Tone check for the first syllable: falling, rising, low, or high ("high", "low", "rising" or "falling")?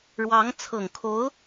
rising